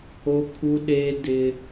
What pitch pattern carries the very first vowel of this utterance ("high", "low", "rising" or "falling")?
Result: high